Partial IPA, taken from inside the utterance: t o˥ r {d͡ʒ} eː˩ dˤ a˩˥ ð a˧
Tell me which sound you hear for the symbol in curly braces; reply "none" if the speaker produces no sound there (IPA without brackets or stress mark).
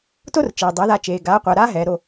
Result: t͡ʃ